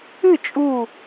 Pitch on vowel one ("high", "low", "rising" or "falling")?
falling